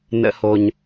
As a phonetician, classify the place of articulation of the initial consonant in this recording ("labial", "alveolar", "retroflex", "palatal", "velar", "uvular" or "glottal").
alveolar